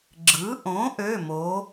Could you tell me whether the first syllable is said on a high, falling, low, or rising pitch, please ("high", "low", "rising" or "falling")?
rising